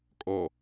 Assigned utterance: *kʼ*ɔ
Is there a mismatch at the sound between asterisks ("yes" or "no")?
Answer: no